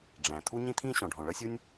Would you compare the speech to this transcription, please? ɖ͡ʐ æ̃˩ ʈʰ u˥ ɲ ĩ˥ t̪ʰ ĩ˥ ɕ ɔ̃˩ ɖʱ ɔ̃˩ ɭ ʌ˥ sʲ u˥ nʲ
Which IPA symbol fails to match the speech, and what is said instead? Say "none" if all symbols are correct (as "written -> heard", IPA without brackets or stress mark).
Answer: ʈʰ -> t̪ʰ